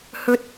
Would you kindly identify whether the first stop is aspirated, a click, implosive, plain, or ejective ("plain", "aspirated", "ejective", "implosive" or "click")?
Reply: plain